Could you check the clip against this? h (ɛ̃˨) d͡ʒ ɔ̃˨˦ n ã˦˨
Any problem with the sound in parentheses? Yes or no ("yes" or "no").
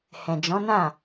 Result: no